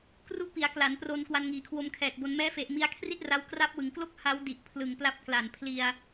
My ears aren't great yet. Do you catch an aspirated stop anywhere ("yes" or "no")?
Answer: yes